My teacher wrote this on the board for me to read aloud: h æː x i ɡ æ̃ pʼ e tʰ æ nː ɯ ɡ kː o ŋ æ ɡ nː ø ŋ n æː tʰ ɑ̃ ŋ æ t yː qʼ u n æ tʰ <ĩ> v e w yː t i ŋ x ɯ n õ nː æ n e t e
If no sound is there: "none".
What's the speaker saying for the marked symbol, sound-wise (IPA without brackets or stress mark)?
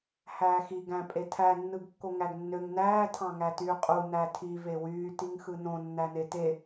i